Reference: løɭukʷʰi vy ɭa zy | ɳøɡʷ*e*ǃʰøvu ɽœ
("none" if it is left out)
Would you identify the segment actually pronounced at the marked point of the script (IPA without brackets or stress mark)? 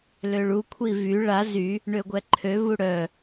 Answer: ɛ